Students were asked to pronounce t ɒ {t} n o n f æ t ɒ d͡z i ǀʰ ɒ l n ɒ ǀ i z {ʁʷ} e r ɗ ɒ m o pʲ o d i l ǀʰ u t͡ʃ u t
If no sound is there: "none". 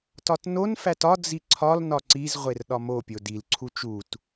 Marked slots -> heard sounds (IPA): t, ʁʷ

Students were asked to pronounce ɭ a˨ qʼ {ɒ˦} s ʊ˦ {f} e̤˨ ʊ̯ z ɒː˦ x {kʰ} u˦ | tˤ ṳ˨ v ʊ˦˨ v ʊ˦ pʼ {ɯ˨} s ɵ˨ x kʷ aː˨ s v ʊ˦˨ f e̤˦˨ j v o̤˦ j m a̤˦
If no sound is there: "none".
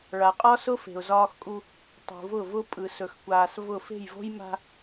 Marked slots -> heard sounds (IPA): ɒ˦, f, kʼ, ɯ˨

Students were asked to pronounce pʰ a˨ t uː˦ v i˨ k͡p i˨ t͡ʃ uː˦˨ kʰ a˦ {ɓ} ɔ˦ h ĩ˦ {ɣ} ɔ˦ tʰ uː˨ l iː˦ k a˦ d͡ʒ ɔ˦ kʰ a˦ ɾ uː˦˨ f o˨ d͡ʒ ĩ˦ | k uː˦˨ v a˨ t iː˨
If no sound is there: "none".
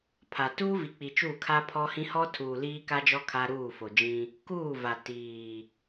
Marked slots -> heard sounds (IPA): pʰ, h

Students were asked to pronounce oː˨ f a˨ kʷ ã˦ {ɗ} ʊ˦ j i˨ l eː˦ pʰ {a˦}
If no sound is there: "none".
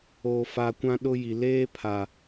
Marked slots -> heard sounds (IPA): ɗ, a˨

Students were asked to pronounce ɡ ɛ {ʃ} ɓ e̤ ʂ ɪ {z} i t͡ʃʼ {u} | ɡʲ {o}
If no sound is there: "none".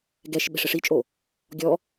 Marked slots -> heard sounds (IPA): ʃ, ʂ, o, ɔ

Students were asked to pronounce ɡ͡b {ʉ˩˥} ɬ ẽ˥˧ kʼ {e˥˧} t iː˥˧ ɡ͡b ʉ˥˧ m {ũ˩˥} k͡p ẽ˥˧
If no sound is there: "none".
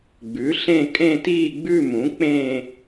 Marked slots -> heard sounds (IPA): ʉ˩˥, ẽ˥˧, ũ˩˥

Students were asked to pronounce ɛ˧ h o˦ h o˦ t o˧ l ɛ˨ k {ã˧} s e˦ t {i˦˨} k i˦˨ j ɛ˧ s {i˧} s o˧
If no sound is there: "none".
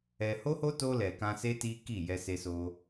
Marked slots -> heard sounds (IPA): ã˧, i˦, e˧

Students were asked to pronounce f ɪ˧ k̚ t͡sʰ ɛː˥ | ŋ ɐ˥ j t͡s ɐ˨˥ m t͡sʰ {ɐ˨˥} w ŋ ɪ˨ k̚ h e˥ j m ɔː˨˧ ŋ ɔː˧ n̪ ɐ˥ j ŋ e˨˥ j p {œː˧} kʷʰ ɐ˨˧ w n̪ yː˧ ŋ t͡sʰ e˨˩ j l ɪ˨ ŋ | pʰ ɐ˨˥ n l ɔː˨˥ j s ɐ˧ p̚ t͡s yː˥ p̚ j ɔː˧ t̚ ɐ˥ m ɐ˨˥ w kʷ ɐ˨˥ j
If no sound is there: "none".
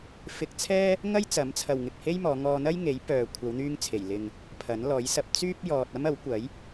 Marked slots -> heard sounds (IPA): ɐ˨, œː˨

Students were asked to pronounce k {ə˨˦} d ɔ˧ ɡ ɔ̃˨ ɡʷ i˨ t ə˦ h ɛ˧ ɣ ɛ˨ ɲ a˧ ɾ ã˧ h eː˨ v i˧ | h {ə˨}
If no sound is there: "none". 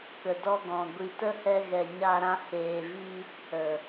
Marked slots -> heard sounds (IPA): ə˨, ə˨

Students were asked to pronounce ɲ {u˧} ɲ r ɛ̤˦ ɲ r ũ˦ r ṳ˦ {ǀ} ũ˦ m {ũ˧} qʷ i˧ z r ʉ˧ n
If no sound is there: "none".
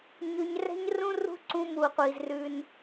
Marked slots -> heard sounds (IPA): ʉ˧, ǀ, u˧

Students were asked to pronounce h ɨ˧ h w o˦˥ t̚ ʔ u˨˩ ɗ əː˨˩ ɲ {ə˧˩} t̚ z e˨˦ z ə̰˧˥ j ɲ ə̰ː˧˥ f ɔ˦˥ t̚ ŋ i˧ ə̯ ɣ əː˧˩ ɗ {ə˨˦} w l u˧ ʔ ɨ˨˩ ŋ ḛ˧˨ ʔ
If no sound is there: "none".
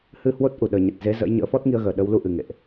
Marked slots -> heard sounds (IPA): ə˨˩, ə˨˦

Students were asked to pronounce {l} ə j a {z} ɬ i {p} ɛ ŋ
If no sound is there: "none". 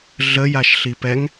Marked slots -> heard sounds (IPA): ɮ, ʃ, p

